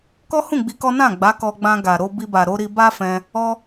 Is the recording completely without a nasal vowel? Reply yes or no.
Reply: no